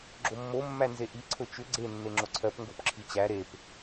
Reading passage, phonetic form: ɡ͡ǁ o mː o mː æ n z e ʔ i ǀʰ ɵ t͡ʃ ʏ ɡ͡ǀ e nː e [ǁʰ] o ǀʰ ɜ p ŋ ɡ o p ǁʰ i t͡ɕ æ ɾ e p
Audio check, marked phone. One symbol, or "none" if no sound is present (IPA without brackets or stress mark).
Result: ŋ͡ǁ